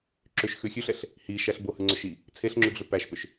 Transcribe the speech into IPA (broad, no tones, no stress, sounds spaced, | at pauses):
ǁ ʏ ʃ x ʉ xʲ ʉ ɬ ɛ ɬ | h i ʃ æ ɬ b o h ʉ ŋ͡ǀ ʏ ʃ i | t͡sʰ e ɬ ŋ͡ǁ ʉ ɡ ɮ ʏ p æ ʃ p ʏ ʃ